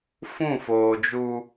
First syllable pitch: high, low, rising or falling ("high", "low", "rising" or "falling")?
falling